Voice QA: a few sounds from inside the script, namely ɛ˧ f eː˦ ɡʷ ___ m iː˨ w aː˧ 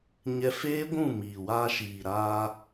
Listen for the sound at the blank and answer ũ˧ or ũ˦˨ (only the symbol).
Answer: ũ˦˨